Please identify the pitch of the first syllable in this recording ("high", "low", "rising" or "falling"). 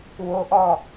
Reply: high